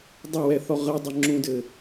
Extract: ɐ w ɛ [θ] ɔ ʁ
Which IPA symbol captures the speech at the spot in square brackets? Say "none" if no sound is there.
θ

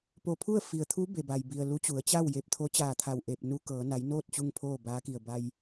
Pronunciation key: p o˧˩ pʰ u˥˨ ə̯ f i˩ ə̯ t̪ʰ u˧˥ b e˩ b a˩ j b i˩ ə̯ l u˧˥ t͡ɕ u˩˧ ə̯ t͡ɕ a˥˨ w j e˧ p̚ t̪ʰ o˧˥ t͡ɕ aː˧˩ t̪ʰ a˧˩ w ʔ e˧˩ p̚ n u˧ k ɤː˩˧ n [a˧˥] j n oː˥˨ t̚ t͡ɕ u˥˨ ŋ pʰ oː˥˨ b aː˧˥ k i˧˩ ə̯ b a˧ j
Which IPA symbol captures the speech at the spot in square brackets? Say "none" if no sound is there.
a˩˧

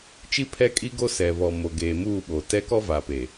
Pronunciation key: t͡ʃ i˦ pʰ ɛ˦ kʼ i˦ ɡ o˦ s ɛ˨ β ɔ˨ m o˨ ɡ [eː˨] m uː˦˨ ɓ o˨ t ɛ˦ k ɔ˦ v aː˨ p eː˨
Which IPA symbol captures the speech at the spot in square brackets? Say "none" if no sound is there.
eː˨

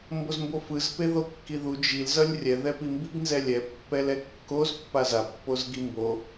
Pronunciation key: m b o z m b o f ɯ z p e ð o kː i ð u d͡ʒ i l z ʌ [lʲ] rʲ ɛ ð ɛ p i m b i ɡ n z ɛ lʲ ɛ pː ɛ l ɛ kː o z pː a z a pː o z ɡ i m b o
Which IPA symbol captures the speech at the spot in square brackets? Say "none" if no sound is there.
lʲ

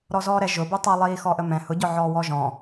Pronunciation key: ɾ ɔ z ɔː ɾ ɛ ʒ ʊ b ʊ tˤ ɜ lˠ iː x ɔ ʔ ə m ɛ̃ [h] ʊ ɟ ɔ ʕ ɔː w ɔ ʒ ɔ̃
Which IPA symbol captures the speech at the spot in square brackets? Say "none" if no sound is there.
h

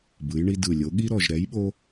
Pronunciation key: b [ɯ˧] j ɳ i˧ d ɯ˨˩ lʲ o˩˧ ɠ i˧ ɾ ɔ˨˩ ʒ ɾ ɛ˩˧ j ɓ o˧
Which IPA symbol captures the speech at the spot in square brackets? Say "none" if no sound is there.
ɯ˩˧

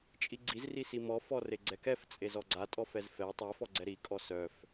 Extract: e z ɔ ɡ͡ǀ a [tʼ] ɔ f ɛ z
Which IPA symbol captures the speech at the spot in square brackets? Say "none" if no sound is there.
tʼ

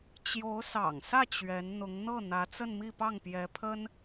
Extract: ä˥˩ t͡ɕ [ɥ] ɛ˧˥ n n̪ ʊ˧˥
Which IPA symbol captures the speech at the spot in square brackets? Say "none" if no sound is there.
ɥ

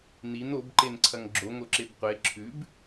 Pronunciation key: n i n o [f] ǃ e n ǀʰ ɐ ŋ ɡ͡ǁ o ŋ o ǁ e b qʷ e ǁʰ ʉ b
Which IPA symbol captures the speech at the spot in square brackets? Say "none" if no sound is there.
b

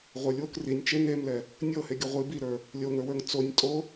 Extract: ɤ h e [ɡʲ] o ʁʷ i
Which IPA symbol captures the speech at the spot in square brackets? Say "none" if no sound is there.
ɡʲ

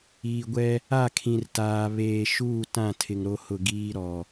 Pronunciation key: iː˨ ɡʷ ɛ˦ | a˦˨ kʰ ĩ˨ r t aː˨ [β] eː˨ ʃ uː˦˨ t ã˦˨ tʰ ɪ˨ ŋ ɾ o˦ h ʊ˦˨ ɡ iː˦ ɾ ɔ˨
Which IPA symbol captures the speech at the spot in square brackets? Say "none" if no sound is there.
β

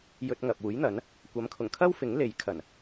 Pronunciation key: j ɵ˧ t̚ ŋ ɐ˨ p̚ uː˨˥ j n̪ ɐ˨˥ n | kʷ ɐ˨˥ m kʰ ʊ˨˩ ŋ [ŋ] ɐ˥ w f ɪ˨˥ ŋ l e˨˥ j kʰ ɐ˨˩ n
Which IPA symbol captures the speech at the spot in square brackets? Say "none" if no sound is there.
kʰ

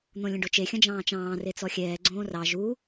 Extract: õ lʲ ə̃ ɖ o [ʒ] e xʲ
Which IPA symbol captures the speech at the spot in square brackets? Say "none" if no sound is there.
t͡ʃ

